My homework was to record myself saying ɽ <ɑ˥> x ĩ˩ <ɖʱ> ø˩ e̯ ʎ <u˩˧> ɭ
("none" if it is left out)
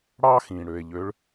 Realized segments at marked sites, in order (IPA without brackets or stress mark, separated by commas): ɑ˧, ɽ, ø˩˧